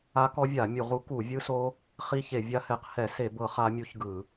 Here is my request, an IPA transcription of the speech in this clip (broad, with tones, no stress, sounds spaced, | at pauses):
a˦˥ k ɔ˦˥ vʲ a˧˩˧ mʲ u˧˩˧ ʁ u˦˥ k u˧˩˧ vʲ ɯ˦˥ s o˦˥ | χ i˦˥ ç e˧˩˧ vʲ a˦˥ h ɛ˧˩˧ q h ɛ˧˩˧ s e˧˩˧ b ɤ˧˩˧ χ a˦˥ mʲ u˦˥ ç ɡ ɯ˧˩˧